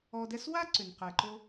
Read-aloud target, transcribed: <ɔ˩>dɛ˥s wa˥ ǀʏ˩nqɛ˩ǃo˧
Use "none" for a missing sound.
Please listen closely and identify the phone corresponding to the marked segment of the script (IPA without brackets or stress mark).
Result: ɔ˧